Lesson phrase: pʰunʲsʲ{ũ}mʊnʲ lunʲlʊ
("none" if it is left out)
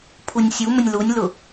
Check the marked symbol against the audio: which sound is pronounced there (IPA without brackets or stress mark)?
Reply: u